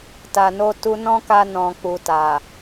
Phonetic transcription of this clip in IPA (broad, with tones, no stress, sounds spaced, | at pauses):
t a˨ n o˧ t u˧ n ɔ̃˦ k a˧ n ɔ̃˨ k͡p u˨ t a˨